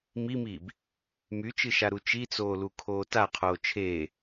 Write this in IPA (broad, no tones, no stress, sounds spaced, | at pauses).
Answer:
m i m iː b | m y t͡ʃ ɨ ʃ a ɾ u t͡ʃ i t͡s oː l u kʰ oː t a qʰ oː t͡ʃʰ eː